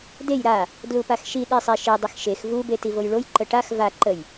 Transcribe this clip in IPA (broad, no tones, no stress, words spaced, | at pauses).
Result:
dej ɾa | dlupaxʃi ɗisˤeʃi dˤəxʃex vu betivojɭoj ǃəʈax va ǃəj